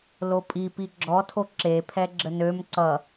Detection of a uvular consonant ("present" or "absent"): absent